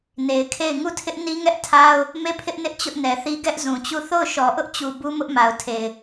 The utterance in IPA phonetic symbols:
ne˨ɪ̯kʰe˦˨ɪ̯ ŋu˦˨tʰɪ˦ʔni˦ŋɛ˦ʔ tʰa˦ʊ̯ | me˦˨pʰɪ˦ʔnɪ˦ʔ t͡ɕʊ˦ʔnɛ˨θi˦ ɡɛ˦ʔzũ˨t͡ɕu˦˨ θo˦˨ʊ̯ʃɔ˨ʔʊ˦ʔt͡ɕu˨ bu˦mʊ˦ʔma˨ʊ̯tʰe˨ɪ̯

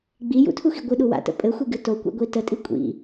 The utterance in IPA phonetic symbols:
ɡ͡bi jṵtʰuxi ɡʷɨɗu wa̰tə̰ pʼɘxʷiɡɨ tokʷḭɡʷi tətʼi kʷʼḭ

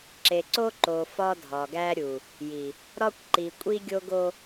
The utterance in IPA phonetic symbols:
ǁe˨ǀo˦ǃo˨ fɒ˦dʱɒ˨ɡæ˦ɾʲu˨ | ji˨ | ɾɒ˦kʷǃi˨ kʷʼi˦ɡʲo˦ɡo˦

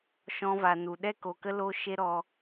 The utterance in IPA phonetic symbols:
ʃɔ̃˧va˨ nu˨ ɗɛ˦ko˨kə˦ lo˦ ʃe˦ɾɔ˧

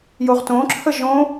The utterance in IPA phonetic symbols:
joʁtõǁʰə ʒõ

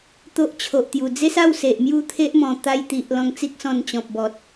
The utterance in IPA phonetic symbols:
t̪o˦ʔt͡ɕʰo˨ʔt̪ju˨˩ d͡ze˦sa˥˧w se˨ʔmju˥˧t̪ʰe˦ʔmɔ̃˨˩ t̪a˧jt̪i˨ʔ lɔ̃˧ŋt͡si˦k̚sɔ̃˧n t͡ɕɔ̃˨p̚bɔ˨t̚

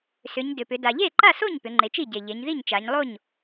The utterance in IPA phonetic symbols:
sʏ˩˧ɲdʏ˩pʏ˩˧ da˩ʎe˥˩ǃa˥˩so˥˩ɲ pʏ˩˧ŋ͡ǃe˩˧t͡ʃi˥˩ɟe˩ ʎe˩˧ɲði˥˩ɲt͡ʃa˩˧ɲlˠo˥˩ɲ

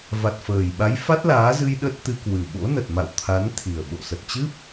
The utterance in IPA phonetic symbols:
va˨˩t̚fəː˨˩j ɓa˨˦jfa˦˥t̚laː˨˦zɨ˧j ɗə˦˥t̚t̪ɨ˧ kwɨ˨˩ ɓo̰˧˥nə˨˩t̚ma̰˧˨w t̪ʰa˨˦n t̪ʰi˨˩ə̯ɓo̰˧˨ sə˨˩t̚t͡ɕɨ˦˥p̚

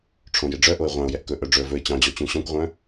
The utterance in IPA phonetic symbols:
ʈ͡ʂʰõjeɖ͡ʐœʔoɪ̯ ʁʷɑ̃ʊ̯jɛʔ kɵ ʔœɖ͡ʐɵə̯vɵɪ̯ t͡ɕɑ̃d͡ʑɔ t͡ɕũɕɔ̃kʷʁʷœ̃

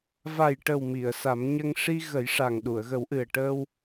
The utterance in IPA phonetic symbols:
va˨˩jʈə˨˩w mi˨˩˨ə̯sa˨˩˦mɲə˧ŋ ʂi˧ɣə˨˩˦jʂa˨˩ŋ ɗu˨˩˨ə̯ɣə˨˩˦wʔɨ˨˩ə̯ ʈəː˧w

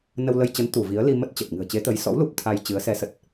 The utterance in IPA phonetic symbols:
nə˧wlə˧j t͡ɕə˨˦n t̪u˧˩ vi˨˦ə̯li˧mə˦˥t̚t͡ɕə˨˩t̚ ŋɨ̤˨˩ə̯t͡ɕe˨˦ t̪ə˨˦j sɔ̰˧˥w lu˦˥p̚t̪ʰa˧jt͡ɕɨ˨˦ə̯ sɛ˨˦sə˨˩t̚

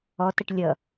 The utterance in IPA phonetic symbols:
ɔtəʈ lʲʌ

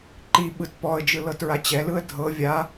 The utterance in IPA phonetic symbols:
ǃiɓɯt pɔə̯d͡ʒɯ lɤtɹat͡ɕɛlɯə̯ dʱɤ vʲa

